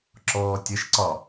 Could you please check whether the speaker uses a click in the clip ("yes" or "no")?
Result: yes